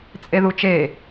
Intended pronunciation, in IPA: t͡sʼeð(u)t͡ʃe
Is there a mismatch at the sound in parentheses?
no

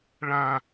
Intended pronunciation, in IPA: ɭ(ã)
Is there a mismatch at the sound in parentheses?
no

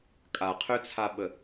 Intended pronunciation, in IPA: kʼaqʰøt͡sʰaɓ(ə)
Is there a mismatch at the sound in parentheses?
no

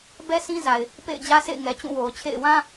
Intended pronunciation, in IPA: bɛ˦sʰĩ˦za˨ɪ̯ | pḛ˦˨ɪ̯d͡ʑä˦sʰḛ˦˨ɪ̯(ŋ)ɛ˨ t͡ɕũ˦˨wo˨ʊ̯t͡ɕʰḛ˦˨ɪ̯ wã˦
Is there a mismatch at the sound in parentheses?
no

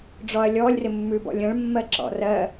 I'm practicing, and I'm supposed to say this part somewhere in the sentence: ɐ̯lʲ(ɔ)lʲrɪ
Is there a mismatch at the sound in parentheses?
no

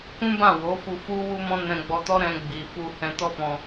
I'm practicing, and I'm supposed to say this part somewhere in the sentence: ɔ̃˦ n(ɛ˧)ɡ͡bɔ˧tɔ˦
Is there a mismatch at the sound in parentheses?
yes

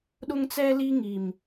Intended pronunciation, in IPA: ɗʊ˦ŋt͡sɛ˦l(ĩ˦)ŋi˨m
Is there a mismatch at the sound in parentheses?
yes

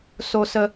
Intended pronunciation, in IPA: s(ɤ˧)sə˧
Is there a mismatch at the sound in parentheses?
yes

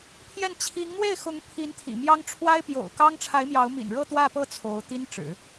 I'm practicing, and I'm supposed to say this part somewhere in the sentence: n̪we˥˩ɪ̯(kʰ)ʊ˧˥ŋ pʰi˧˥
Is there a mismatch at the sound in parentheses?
yes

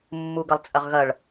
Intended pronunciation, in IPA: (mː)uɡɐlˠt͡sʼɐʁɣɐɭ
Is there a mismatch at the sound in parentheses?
no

